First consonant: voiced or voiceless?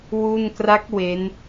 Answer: voiced